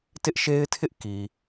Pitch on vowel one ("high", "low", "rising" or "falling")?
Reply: high